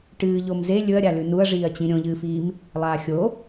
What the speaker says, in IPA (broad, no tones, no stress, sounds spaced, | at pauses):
ʈ ɨː ʎ o m z e lʲ ɵ ɐ̯ ɾʲ a l ʉ n u ɐ̯ ʐ iː ɐ̯ t͡ɕ ĩ ɾʲ õ ʎ ɨː f iː m | lˠ aː xʲ o